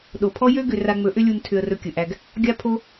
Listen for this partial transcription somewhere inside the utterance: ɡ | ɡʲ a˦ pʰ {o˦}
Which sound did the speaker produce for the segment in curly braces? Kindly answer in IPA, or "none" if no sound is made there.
o˦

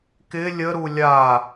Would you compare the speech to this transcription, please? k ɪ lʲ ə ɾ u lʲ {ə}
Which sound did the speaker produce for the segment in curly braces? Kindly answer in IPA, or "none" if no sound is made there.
a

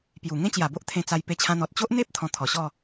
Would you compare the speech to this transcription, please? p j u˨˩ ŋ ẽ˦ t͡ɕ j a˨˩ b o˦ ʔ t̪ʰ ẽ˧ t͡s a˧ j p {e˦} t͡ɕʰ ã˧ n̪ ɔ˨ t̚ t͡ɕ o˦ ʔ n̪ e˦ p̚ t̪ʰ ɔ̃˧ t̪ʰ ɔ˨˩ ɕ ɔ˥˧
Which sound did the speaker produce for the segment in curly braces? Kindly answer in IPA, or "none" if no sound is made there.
e˧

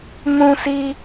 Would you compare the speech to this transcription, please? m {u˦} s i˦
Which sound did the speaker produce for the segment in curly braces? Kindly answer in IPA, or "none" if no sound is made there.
ũ˦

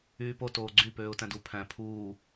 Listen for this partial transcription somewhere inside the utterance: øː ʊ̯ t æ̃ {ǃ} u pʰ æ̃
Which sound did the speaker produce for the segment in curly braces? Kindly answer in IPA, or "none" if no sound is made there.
d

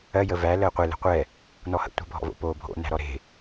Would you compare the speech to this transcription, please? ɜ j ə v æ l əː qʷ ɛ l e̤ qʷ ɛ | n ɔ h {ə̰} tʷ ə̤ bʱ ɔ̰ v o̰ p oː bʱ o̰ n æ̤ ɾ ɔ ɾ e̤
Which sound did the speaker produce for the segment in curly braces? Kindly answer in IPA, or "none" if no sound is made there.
ə̰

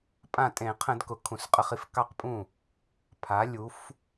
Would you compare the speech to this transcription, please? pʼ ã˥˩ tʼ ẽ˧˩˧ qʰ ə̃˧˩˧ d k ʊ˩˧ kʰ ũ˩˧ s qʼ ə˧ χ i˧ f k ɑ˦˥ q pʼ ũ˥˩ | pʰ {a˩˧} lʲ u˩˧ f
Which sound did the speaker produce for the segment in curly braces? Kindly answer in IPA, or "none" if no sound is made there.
a˩˧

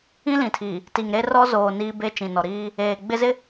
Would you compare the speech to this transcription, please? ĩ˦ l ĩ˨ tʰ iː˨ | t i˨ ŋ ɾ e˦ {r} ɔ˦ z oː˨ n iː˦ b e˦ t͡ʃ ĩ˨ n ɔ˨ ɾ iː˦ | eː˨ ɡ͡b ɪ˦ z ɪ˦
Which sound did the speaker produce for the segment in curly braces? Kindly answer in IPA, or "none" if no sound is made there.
r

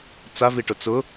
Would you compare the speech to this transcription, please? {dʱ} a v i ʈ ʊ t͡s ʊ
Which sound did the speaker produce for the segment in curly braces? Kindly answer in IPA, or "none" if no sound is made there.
t͡s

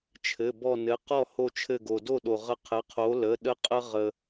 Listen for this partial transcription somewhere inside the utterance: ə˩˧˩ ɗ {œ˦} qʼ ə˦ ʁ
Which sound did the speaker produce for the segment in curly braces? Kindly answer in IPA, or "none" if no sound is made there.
ə˦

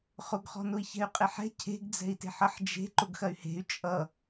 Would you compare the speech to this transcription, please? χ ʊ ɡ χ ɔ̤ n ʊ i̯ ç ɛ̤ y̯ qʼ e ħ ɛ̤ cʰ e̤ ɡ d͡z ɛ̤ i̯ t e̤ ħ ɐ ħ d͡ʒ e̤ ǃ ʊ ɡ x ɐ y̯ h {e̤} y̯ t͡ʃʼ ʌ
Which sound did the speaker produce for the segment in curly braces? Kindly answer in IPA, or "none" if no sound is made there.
e̤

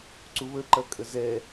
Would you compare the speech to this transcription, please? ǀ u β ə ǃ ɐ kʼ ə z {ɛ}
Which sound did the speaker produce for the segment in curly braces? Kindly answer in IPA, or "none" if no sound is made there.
ɛ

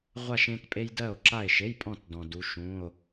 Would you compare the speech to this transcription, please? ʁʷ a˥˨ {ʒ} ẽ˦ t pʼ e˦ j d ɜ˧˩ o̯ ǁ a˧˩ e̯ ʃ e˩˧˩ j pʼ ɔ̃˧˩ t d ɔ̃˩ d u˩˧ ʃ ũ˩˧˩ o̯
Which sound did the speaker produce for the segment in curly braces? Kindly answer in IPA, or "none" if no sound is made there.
ʃ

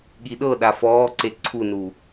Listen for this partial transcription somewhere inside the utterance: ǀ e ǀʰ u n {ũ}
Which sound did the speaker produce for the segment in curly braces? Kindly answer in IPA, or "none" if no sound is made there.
u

